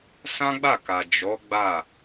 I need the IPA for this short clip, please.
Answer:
s ã˦ ɡ͡b a˦˨ k a˨ d͡ʒ ɔ˨˦ ɡ͡b a˦˨

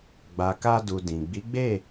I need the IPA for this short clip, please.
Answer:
ɡ͡b a˨ k a˧ d u˨ d ĩ˨ ɡ͡b i˨˦ ɡ͡b e˦˨

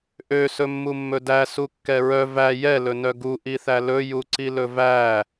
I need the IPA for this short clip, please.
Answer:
ʔ ø s ɵ mː u mː ɵ d æ s u kː ɛ ɹ œ v æ j ɛ l ɵ n œ ɡ u ʔ i θ æ l ɵ j u ǀ i l ɵ v æ

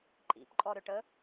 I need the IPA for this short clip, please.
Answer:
ǃʼ ḭ p ǃʼ ɔ ɾ ʏ ʈ ə

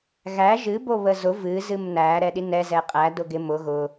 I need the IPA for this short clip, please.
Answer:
ɣ æ ʒ ɨ b o β ə z ʊ v ɨ z ɨ m n æ ɾ ɛ ɗ i n ɛ z ɛ qʼ æ d ʊ ɡ ɪ m ʊ ɣ ʊ

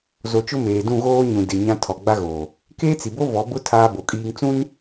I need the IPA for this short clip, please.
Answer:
z o˨ t͡ʃ ʊ˦ m eː˨ d ũ˦˨ ɣ oː˦ ɲ ũ˨ d ɪ˨ ɲ ã˦ tʰ ɔ˨ ɡ͡b a˦ ɣ oː˨ | k eː˦ t͡s i˨ b o˦ v ɔ˨˦ b ʊ˦ tʰ aː˦ b o˨ kʼ iː˦ ŋ t͡s ũ˦ n

